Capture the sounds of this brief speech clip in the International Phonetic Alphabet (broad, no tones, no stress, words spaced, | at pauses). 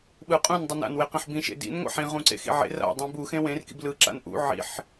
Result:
ɓɯqʼũn dˤɯna̰n weqẽħbĩ ʃḛdḭn ŋʷa̰ħĩ ʁũǀḛxḭʕḛr a̰ dˤĩbu xẽwẽr kḭblɯ ǁa̰nʔṵ ʕḭħ